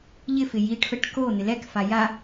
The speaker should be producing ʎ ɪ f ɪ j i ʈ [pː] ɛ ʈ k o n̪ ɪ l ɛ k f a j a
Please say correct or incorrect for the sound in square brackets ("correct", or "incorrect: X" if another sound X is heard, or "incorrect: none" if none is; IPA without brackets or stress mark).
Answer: incorrect: f